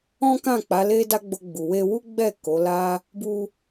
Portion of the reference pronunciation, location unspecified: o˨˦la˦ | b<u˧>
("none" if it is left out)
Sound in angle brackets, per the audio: u˧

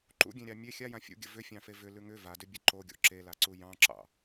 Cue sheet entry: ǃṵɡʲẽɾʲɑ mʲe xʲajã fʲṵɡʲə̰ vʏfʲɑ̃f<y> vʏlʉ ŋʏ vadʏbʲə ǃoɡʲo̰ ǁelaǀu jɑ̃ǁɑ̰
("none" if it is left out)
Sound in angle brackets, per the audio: e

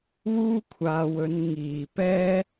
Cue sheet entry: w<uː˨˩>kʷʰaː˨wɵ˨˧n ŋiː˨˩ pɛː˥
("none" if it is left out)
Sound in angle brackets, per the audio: uː˥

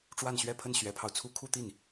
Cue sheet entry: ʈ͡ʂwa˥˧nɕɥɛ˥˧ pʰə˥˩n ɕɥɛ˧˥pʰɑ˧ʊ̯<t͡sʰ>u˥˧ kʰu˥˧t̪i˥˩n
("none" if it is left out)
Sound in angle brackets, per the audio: t͡sʰ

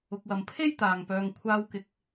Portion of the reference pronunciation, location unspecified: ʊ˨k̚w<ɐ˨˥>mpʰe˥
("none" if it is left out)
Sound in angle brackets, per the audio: ɐ˨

